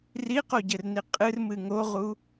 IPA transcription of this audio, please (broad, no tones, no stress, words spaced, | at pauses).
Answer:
riqoɟɘrni qʼɨrmɨ ŋoʁu